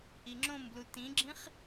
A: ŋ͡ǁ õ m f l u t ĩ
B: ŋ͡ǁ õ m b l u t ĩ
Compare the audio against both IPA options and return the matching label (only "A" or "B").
B